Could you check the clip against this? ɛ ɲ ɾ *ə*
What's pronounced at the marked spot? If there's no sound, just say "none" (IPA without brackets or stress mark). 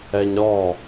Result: ɔ